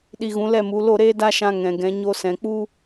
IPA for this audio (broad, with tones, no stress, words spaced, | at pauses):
ɗi˧ɣũ˨˦lɛ˦˨mu˨˦ lo˦˨ɾeː˦ da˦ʃã˧ ŋɛ̃˨ɡɛ̃˨˦ ɲo˧sɛ̃˨k͡pu˦